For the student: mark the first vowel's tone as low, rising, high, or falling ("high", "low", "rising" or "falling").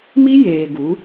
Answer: high